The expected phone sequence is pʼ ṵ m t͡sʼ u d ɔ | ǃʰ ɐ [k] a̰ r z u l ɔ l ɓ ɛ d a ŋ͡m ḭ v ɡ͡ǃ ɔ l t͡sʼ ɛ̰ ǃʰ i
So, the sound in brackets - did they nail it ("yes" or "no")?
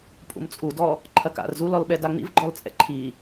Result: yes